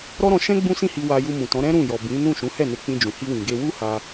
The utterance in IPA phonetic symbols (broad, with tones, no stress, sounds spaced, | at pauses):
ɾ ɔ˦ ɾ ɔ̃˧ ʃ ɛ̃˦ ɡ͡b ũ˦ s ĩ˦˨ h i˧ w a˧ j u˧ m ũ˨ t ɔ̃˨˦ ɾ ɛ̃˦ ɾ ũ˦˨ j ɔ˨ b ĩ˨˦ n ũ˦˨ ʃ ũ˨˦ h ɛ˦˨ n e˧ k͡p ĩ˧ d͡ʒ ũ˨ h i˧ w ĩ˨ ɡ e˧ w u˦ h a˧